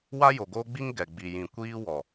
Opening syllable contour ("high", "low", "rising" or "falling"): high